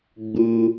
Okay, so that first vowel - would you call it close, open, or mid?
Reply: close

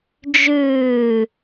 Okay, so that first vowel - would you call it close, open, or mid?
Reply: close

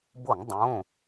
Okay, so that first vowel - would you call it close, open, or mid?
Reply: mid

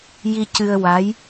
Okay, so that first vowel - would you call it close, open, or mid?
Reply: close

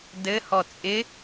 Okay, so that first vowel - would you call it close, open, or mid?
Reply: mid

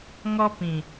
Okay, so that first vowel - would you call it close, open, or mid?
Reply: mid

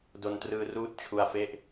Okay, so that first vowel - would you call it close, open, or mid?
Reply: mid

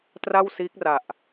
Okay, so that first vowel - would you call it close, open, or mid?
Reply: open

